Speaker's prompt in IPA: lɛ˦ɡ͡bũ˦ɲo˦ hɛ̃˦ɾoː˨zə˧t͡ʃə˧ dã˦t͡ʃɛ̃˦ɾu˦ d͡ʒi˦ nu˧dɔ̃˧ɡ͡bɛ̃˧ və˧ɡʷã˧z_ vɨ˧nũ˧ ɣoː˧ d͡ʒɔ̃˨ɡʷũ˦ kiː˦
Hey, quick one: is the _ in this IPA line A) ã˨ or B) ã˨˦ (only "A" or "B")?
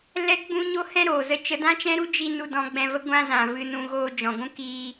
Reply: A